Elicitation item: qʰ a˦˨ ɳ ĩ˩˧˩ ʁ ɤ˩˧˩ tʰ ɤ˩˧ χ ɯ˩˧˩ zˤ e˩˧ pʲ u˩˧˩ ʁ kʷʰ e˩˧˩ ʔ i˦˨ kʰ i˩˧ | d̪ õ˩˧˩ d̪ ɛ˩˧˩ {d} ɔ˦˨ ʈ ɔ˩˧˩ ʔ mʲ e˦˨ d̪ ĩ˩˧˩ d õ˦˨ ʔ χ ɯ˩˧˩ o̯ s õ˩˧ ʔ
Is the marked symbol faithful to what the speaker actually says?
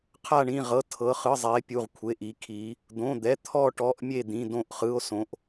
no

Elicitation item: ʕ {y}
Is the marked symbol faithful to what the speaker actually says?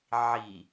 no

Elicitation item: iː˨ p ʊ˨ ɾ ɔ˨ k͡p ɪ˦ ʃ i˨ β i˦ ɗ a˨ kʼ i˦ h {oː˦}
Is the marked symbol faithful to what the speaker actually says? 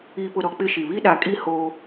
yes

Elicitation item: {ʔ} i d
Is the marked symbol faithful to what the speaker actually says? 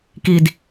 no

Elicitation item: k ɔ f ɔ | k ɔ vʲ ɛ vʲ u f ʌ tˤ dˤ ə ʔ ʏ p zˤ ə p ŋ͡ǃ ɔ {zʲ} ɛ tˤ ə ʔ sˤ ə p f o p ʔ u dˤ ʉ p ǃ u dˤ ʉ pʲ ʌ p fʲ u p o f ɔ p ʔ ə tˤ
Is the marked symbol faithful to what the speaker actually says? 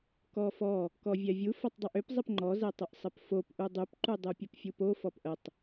no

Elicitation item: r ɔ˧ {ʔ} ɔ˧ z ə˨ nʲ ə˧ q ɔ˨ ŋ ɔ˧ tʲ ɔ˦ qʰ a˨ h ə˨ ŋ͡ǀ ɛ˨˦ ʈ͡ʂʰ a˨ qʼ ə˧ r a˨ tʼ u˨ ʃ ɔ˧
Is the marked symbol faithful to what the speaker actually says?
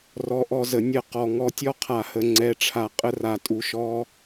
yes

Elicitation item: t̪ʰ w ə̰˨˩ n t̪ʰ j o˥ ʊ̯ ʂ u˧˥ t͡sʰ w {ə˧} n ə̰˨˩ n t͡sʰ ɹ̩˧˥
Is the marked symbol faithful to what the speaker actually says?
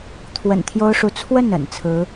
no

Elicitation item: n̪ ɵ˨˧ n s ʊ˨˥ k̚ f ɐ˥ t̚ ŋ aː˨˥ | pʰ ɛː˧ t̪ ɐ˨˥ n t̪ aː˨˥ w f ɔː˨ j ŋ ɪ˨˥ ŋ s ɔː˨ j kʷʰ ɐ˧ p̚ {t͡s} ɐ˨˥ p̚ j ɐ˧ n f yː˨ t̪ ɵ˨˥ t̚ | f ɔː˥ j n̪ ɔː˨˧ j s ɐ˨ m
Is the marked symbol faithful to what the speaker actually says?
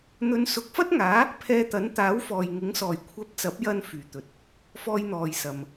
yes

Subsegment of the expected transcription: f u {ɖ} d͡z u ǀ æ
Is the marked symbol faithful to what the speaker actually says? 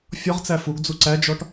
no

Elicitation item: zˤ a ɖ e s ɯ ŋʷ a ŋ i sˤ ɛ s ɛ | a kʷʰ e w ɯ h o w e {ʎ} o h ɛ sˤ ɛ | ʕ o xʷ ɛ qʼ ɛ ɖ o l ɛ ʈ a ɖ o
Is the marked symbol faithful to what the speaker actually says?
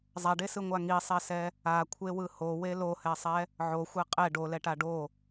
no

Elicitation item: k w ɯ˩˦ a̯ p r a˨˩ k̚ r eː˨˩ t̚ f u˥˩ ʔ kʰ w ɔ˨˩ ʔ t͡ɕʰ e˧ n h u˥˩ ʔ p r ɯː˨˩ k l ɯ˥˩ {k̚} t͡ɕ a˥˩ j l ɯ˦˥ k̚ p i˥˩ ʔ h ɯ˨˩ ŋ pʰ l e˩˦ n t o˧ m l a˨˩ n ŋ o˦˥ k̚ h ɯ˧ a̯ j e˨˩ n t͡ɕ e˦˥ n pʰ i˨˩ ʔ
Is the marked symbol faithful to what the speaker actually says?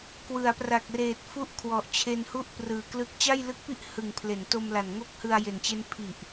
yes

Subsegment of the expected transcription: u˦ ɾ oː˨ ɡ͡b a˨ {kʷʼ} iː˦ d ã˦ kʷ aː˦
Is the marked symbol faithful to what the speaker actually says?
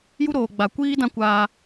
no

